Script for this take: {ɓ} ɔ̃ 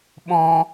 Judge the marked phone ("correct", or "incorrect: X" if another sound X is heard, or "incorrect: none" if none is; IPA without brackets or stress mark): correct